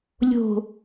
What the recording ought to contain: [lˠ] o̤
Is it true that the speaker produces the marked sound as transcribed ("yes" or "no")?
no